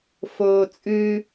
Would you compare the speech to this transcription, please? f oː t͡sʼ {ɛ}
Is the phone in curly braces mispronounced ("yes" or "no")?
yes